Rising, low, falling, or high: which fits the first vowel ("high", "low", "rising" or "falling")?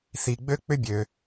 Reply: low